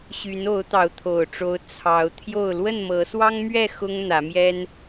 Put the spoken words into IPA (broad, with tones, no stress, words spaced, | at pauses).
ɕy˨˦n o˨˦ʊ̯t̪ɑ˨˦ʊ̯t̪ʰo˨˩ʊ̯ʈ͡ʂo˨˦ʊ̯ t͡sʰɑ˨˦ʊ̯t̪ʰjo˥˨ʊ̯ lwə˥˨nmɤ˨˦swɑ˦ŋmɥɛ˥˨ xʊ˦ŋn̪ä˨˦mjɛ˦n